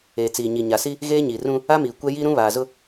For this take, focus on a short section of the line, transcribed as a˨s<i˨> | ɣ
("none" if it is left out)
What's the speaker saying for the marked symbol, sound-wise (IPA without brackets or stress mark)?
i˦